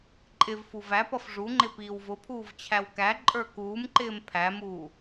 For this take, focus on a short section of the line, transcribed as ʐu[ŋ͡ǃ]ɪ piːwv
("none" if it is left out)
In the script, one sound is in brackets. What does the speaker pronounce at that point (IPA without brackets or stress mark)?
ŋ͡ǃ